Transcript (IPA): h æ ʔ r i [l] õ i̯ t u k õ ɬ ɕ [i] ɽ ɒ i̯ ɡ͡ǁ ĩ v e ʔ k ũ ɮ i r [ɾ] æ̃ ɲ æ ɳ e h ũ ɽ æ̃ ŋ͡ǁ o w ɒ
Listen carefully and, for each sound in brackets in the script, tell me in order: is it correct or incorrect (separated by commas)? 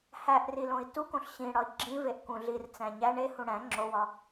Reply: correct, incorrect, incorrect